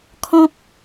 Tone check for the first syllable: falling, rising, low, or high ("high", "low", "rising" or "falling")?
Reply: high